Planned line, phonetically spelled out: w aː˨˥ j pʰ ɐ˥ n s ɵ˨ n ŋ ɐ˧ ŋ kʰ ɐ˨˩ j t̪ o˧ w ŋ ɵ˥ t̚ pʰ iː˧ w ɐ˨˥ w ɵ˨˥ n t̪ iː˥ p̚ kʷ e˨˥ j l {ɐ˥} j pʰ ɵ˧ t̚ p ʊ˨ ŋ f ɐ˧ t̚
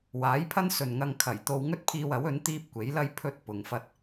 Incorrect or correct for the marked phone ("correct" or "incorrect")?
correct